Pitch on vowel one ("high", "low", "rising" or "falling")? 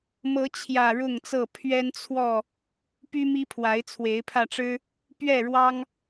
rising